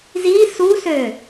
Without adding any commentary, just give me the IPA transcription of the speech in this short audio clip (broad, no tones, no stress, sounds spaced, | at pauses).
z i s u s ø